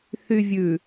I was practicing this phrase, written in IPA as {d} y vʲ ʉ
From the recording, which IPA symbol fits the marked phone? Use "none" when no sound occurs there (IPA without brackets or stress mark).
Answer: θ